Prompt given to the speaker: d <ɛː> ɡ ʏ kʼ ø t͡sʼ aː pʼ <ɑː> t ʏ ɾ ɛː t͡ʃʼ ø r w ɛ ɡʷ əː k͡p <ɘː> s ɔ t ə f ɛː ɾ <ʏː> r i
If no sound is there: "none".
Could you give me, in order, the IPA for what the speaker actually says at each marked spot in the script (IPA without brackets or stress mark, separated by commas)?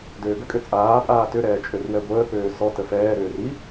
øː, aː, øː, ʏː